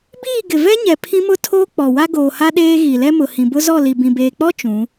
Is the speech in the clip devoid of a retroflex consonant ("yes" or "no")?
yes